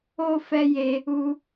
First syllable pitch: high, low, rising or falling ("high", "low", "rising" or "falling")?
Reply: high